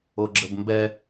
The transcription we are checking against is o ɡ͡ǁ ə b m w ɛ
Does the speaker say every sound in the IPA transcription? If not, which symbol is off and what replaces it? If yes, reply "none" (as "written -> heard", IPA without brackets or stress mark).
w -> b